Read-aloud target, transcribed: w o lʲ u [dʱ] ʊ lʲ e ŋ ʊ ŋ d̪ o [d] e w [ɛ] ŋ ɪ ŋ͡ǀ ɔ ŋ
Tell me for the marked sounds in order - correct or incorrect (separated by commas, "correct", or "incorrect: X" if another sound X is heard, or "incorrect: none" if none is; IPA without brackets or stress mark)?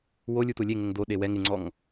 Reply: incorrect: t̪, incorrect: ɗ, correct